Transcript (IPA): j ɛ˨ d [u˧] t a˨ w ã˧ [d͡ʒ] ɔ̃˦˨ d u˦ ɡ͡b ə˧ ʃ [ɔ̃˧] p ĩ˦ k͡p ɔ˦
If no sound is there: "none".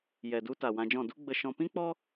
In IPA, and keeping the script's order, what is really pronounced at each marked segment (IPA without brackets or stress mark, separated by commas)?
u˧, d͡ʒ, ɔ̃˧